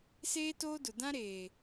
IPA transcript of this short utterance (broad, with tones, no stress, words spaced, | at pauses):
seː˦toː˦dʊ˨ dã˦ɾeː˨